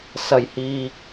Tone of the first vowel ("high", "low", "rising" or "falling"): low